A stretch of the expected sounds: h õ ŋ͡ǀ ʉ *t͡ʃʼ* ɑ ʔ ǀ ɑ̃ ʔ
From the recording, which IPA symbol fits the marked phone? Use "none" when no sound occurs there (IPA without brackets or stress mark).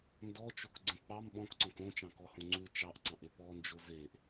t͡ʃ